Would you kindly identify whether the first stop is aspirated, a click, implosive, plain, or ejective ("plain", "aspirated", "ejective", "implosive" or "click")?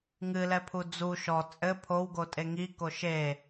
aspirated